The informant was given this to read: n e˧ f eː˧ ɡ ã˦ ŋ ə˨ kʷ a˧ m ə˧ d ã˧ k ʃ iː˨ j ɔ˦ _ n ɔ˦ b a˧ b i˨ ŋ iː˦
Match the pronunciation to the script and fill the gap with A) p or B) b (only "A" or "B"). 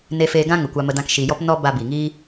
A